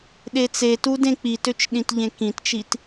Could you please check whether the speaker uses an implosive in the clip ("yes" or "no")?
yes